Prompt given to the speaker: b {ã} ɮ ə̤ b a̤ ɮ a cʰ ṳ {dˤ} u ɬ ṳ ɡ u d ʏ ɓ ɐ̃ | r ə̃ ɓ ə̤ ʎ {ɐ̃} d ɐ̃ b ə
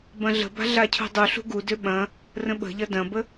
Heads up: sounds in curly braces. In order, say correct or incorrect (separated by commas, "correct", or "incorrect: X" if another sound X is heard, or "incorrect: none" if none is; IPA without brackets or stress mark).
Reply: incorrect: ɐ̃, correct, incorrect: ɐ